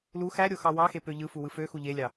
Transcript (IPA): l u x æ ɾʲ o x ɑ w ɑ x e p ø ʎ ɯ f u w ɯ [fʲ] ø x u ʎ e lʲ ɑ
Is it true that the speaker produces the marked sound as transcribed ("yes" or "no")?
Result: no